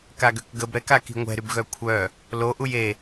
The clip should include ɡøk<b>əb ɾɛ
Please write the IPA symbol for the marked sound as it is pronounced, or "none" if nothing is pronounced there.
ɡ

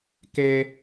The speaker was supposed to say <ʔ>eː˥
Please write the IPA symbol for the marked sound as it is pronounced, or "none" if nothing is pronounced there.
k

